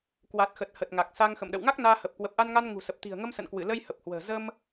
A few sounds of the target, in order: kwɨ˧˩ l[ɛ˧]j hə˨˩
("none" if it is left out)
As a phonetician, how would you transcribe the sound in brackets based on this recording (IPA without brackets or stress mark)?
ə˧